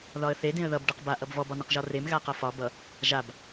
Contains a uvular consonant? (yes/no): yes